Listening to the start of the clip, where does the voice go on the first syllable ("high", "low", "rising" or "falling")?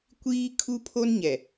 high